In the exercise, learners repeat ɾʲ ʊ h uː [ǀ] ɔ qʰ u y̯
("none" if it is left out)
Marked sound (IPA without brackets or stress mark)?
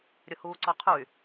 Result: ǀ